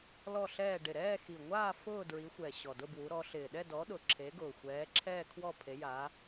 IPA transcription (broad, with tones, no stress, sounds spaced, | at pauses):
l ɔ˥˧ ɬ ɛː˥˧ ɖ ɪ˨˩ ɾ ɛː˥˧ x i˨˩ ŋʷ aː˥˧ f ʊː˥˧ d ɹ i˨˦ xʷ ɛ˨˩ ɕ ɔ˨˩ d ʊ˥˧ b w u˨˦ ɾ ɔ˨˦ ɬ ɪː˨˩ ɗ ɛ˥˧ d ɔ˨˦ ɗ ʊ˨˩ ǁʰ e˨˦ ɡ ʊː˨˩ xʷ ɛː˨˦ ǁʰ ɛː˥˧ kʰ w ɔ˥˧ pʰ e˨˦ j aː˨˦